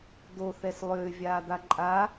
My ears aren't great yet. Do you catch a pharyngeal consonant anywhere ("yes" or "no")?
no